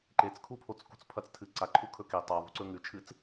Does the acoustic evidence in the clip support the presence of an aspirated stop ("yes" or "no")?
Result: yes